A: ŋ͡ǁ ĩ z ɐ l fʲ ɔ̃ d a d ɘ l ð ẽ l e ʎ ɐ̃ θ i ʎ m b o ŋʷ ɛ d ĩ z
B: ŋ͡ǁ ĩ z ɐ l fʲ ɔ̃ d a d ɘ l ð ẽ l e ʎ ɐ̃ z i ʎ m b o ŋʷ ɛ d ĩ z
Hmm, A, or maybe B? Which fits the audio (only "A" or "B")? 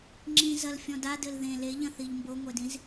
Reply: A